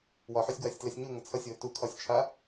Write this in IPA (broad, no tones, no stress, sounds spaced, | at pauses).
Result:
w ɒ ħ ʏ sʲ ɡ w a sʲ t l ɛ sʲ ɲ u ŋ ʌ t͡sʰ ʌ sʲ w ɘ t u kʰ ɒ sʲ t͡ʃʰ a